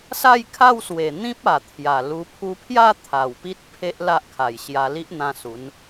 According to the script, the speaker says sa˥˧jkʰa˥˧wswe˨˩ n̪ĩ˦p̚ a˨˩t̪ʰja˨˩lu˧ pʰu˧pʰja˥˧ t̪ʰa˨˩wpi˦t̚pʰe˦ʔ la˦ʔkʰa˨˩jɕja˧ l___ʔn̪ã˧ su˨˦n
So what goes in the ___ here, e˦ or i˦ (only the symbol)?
i˦